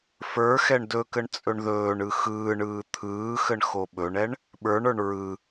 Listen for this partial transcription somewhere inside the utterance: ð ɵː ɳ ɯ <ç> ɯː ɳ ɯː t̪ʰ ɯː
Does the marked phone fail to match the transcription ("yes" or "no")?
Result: yes